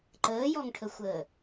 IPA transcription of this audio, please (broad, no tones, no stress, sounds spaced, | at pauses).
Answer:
ǃ əː j ɔ ŋ ʈʰ ə xʷ əː